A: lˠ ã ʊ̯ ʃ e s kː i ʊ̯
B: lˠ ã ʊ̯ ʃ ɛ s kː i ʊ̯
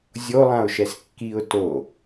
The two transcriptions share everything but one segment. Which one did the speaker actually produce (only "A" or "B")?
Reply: B